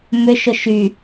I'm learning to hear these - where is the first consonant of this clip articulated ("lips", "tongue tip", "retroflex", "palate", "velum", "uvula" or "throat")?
lips